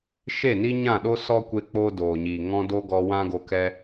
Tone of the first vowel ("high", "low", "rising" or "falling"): falling